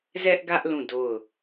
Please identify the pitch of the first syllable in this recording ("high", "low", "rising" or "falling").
high